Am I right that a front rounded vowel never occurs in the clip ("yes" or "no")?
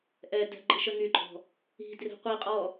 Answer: no